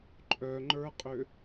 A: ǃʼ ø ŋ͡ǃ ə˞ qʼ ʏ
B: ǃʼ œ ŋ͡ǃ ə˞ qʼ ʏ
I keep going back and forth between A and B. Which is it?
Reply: B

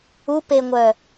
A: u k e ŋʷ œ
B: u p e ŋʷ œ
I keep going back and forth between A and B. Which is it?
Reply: B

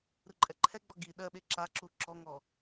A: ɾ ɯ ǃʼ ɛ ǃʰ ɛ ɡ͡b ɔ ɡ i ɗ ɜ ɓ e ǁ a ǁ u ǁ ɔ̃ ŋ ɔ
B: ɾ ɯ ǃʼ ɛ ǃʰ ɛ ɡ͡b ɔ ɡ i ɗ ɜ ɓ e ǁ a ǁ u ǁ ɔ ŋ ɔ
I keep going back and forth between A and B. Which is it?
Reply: B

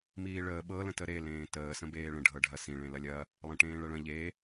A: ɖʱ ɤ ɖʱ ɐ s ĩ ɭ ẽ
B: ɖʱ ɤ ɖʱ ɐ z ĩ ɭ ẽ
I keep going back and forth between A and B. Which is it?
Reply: A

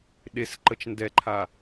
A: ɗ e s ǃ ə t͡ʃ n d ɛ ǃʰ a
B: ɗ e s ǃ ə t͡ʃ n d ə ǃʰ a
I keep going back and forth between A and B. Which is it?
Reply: A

